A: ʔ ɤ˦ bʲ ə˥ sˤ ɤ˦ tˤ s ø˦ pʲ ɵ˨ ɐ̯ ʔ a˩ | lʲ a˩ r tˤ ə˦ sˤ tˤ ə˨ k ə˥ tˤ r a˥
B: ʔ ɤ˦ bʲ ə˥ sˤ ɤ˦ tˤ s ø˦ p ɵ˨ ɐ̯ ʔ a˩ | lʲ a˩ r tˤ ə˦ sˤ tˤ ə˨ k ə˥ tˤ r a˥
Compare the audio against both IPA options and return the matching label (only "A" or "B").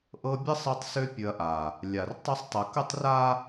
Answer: A